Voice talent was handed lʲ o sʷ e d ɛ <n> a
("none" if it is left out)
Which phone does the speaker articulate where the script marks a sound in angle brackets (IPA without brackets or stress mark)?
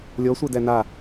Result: n